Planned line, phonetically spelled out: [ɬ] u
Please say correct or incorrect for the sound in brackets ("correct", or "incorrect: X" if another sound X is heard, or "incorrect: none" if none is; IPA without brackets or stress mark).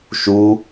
incorrect: ʃ